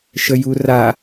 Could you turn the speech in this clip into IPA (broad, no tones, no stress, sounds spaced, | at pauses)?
ʃ ə j u r a